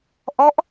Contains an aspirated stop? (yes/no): no